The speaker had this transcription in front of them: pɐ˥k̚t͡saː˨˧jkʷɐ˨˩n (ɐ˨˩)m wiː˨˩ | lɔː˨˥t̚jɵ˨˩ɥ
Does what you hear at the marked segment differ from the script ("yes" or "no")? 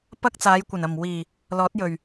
no